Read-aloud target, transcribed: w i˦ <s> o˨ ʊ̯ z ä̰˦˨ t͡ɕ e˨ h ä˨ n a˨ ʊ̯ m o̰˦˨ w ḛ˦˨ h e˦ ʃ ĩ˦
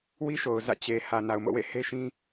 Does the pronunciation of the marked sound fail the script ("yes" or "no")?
yes